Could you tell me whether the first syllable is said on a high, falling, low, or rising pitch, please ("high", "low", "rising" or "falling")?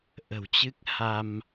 low